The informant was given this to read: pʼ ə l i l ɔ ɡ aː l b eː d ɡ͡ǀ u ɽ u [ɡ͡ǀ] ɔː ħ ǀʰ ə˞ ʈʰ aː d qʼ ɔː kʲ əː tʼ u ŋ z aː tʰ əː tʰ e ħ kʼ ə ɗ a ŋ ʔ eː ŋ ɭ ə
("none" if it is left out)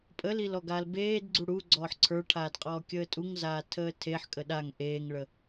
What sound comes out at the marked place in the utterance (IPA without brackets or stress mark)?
ɡ͡ǀ